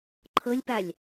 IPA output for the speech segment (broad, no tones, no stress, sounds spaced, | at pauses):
ǃʰ ɤ lʲ p a lʲ